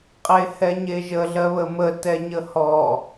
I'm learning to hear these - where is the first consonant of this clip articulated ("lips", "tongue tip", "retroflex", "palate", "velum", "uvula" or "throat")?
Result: uvula